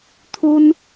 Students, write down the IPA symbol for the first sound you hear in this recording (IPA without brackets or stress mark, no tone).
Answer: t̪ʰ